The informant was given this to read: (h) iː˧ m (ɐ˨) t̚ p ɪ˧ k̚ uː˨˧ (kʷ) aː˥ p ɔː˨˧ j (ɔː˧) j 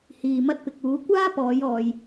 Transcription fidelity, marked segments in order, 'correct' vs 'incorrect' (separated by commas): correct, incorrect, correct, correct